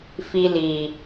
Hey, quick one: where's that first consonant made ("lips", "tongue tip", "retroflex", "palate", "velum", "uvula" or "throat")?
lips